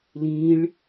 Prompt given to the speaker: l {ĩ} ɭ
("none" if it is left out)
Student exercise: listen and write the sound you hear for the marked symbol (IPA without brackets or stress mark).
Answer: ĩ